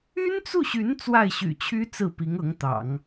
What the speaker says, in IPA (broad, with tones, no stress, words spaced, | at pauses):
y˥nt͡su˥˩ɕy˧˥n t͡swa˥˩ɪ̯ɕy̰˨˩t͡ɕʰy˥ t͡sɹ̩˥˩pi˧˥ŋɤ˧˥ŋt̪ɑ̰˨˩˦ŋ